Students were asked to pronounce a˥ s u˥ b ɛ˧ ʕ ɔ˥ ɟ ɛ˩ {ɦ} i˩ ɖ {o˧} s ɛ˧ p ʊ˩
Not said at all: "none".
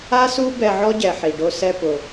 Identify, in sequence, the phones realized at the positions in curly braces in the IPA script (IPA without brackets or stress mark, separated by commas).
ħ, o˧